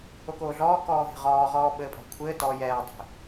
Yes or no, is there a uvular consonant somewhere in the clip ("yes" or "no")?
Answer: yes